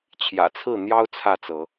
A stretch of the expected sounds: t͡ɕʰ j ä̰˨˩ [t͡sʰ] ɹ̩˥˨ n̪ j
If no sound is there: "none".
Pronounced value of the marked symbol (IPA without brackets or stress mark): t͡sʰ